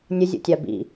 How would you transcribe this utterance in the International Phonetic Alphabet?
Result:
nʲ ə zʲ o̰ tʲ a b ḭ

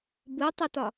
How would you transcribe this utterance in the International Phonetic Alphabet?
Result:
b ɯ tˤ ɪ t ɒ

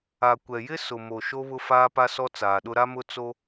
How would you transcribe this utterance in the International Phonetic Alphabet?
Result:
a˨ kʷ ɛ˨ j ɪ˦ s ʊ˨ m o˨ ʃ o˦ β ʊ˦ f aː˦ p a˦ s ɔ˦ t͡s aː˨ ɗ ʊ˦ ɾ a˦ m ʊ˦ t͡s o˦

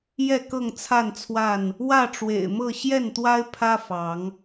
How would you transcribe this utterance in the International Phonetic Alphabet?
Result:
j ɛ˥˨ k ɤ˥˨ ŋ t͡sʰ a˥˨ n t͡sʰ w a˥˨ n | w ä˥˨ ʈ͡ʂ w ḛ˨˩ ɪ̯ m ɤ˥˨ ɕ j ɛ˥˨ n t̪ w a˦ ɪ̯ pʰ ä˦ f ɑ˨˦ ŋ

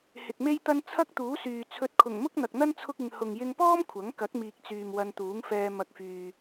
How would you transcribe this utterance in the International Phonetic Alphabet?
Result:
h ɪ˨ k̚ m e˥ j t̪ ɐ˥ n t͡sʰ ɐ˥ k̚ t̪ uː˨˥ s yː˨ t͡sʰ ɵ˧ t̚ kʰ ʊ˨˩ ŋ m ʊ˥ k̚ n̪ ɐ˨ k̚ n̪ ɐ˥ n t͡sʰ ʊ˥ k̚ ɪ˧ ŋ h ʊ˨ ŋ j ɪ˧ ŋ p ɔː˥ m kʷʰ ɐ˨˥ ŋ k ɐ˨˥ k̚ m iː˨ k̚ t͡s yː˨ m w ɐ˧ n t̪ uː˨˥ ŋ f ɛː˧ m ɐ˨ k̚ f yː˨

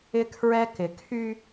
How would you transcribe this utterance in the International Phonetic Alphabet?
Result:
ɪ˦ kʰ ɹ ɛ˦ k ɪ˨ kʰ y˦

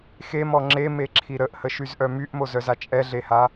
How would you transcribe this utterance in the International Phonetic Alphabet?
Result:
x e m ɔ ŋ͡ǁ e m e ǁʰ i ɾ ə ʔ h ə ʃ y z ʔ œ m y ʔ m o z œ z a t͡ʃʼ ɛ ɮ e h a

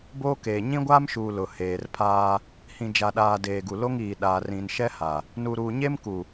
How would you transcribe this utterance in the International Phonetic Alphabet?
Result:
b oː˦ k eː˨ ɲ ĩ˦ ɡʷ aː˦ m ʃ uː˨ l ʊ˨ h eː˨ r pʰ aː˦ | h ĩ˨ d͡ʒ a˨ ɗ aː˨ d eː˨ ɡ u˨ l o˦ ŋ iː˨ ɗ aː˨ r ĩ˨ n ʃ ɛ˦ h a˨ | n u˨ ɾ uː˨ ɲ e˦ m k u˨

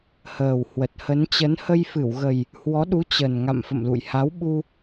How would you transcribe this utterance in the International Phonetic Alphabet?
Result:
h əː˨˩ w h w ə˨˩ t̚ h ə˨˦ n t͡ɕ ə˨˦ n h ə˧ j f ɨ˧˩ w ɣ ə˨˩ j | h w ɔ˨˦ ɗ u˨˦ t͡ɕ ə˨˩ n ŋ a̰˧˨ m f ə̰˧˨ m l ṵ˧˨ j h a˨˦ w ɓ u˧

